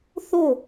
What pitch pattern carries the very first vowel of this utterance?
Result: falling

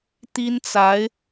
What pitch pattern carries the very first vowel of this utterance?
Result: high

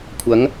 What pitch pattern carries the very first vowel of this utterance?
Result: rising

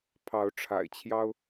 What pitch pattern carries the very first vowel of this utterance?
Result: rising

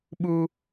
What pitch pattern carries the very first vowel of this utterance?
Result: high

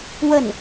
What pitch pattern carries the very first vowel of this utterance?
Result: falling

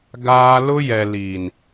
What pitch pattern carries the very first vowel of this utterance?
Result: high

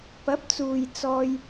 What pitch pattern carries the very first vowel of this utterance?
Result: rising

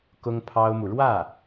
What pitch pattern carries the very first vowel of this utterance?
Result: high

